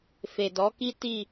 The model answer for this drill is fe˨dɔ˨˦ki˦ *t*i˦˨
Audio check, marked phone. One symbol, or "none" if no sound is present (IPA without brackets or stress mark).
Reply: t